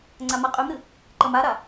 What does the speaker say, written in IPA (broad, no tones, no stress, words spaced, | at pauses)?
ŋ͡ǀamaqʼymɾɨ | ǃʌmaɾa